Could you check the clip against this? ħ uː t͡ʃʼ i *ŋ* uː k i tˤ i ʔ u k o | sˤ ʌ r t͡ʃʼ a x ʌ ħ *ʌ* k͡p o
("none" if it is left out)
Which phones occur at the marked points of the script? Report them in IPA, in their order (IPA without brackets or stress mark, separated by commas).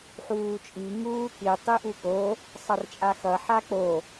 ŋ, a